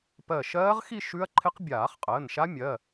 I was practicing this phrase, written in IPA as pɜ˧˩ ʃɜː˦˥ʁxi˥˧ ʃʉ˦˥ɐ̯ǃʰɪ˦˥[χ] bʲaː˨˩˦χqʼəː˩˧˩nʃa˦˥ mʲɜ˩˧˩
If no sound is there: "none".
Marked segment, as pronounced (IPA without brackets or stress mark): q